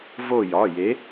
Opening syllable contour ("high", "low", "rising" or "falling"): falling